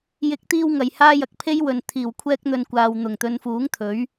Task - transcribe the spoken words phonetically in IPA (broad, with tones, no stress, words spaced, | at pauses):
jɪ˨˥k̚t̪iː˧w ŋɐ˨jhaː˥ jɐ˨k̚pʰe˥j wɵ˨n t̪ʰiː˨˩wkʷʰɛː˥k̚n̪ɵ˧n kʷaː˨wn̪ʊ˨˩ŋ t̪ɵ˨˧nfuː˨˥ŋ t̪ʰɵ˨˥ɥ